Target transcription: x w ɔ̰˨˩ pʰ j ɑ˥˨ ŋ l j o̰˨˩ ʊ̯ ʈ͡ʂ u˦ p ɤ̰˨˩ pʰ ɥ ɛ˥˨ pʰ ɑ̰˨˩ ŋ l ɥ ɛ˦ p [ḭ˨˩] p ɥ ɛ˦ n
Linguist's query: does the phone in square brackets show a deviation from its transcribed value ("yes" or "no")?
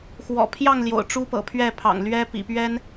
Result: no